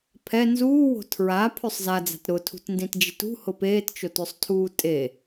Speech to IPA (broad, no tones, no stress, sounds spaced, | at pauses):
pʰ ɛ n z uː w o̤ tʰ ɹ a pʰ ø sˤ z a d͡z a̤ t ɾ ʊ tʰ ṳ t n d ĩ t d͡ʒ ɪ t ṳ h ʊ p eː t t͡ʃ o t ø sˤ tʰ uː tʼ e